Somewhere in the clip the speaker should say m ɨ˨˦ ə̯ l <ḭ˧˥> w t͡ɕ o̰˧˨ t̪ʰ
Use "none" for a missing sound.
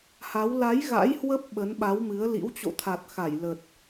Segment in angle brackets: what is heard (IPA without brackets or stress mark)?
ḭ˧˥